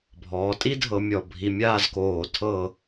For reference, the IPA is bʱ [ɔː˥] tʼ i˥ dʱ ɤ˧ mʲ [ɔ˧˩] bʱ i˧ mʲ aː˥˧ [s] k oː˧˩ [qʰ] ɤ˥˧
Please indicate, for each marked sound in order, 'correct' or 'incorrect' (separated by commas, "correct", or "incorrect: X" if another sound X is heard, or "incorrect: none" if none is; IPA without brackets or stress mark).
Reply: incorrect: ɔː˩˧, correct, incorrect: z, incorrect: tʰ